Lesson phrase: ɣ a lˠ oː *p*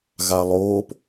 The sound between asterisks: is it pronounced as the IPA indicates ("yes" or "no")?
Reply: yes